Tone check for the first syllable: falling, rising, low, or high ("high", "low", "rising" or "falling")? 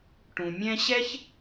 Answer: low